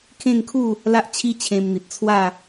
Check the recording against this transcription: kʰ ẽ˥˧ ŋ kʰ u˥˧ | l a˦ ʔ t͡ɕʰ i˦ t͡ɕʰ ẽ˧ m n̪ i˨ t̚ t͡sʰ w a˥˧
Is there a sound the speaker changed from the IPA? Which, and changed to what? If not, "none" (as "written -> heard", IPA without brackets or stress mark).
none